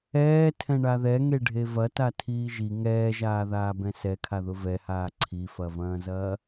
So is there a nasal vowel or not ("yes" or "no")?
yes